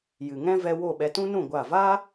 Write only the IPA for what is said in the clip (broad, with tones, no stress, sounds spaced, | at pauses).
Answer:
j ɨ˨ ŋ ɛ̃˦ v ɛ˧ w o˦˨ ɓ ɛ˧ t ũ˦ n ũ˦˨ ɡʷ a˦˨ v aː˦